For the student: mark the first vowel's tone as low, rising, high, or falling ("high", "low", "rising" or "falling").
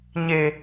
low